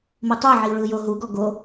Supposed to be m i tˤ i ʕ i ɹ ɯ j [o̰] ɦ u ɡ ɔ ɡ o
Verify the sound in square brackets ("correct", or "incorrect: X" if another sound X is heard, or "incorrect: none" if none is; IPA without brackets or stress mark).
incorrect: o